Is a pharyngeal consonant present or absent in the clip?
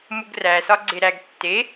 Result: absent